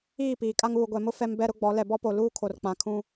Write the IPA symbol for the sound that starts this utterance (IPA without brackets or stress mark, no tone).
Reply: iː